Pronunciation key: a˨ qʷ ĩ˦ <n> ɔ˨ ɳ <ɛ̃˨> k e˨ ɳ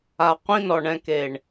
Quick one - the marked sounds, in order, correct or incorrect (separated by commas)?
correct, correct